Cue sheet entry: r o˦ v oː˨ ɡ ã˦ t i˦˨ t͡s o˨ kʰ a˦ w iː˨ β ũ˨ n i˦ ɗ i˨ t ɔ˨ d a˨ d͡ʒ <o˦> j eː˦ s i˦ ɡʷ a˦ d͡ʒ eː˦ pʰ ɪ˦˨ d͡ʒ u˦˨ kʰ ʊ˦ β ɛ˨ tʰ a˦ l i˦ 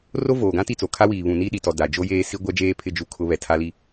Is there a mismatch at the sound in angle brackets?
no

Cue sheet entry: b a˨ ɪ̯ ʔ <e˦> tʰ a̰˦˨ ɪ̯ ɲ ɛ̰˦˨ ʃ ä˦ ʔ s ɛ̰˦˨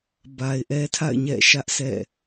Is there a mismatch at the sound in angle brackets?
yes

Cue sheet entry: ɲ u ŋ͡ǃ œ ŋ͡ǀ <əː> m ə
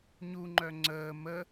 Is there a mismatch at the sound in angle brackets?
no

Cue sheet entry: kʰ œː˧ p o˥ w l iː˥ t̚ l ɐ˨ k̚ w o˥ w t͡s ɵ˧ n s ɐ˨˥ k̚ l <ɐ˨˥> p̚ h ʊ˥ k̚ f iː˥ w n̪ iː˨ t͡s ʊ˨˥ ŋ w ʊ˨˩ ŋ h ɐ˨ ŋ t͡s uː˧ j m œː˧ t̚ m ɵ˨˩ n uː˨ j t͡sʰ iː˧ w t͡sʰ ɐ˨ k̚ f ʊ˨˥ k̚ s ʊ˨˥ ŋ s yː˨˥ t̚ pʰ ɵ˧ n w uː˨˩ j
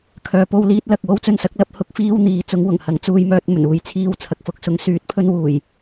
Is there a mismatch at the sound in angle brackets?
no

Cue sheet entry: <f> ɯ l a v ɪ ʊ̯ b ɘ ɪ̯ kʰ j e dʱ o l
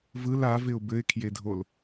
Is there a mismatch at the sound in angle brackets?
yes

